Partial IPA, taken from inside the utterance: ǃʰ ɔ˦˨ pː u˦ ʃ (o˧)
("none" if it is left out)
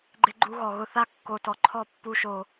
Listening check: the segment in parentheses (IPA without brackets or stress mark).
o˧